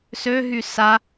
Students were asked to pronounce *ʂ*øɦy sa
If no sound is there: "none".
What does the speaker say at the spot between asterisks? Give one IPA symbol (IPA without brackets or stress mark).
s